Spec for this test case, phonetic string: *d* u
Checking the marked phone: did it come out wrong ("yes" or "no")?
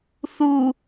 yes